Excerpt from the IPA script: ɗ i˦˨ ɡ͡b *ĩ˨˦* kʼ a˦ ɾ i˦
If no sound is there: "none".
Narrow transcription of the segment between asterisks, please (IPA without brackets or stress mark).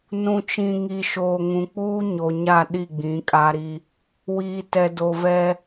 ĩ˨˦